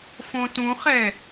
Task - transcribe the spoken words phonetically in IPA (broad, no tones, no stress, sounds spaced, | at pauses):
f õ t ũ χ ɛ